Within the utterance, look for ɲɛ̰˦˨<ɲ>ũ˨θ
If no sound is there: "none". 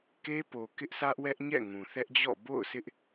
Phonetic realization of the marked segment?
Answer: ŋ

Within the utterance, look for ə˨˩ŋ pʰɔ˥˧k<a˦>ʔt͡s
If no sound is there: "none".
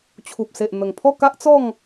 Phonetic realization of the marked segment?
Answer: a˦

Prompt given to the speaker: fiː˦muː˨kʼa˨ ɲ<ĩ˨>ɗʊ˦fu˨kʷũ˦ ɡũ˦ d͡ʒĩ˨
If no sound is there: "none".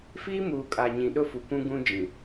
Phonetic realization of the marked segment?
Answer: ĩ˨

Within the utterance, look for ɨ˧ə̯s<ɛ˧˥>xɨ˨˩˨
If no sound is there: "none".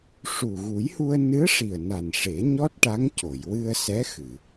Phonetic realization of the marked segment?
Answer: ɛ˧˥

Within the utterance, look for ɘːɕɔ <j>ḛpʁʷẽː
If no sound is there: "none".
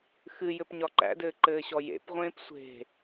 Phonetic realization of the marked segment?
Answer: j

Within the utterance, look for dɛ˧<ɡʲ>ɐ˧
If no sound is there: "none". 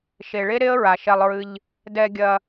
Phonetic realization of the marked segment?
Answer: ɡʲ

